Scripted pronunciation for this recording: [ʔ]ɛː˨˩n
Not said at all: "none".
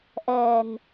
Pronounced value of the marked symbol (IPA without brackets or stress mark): ʔ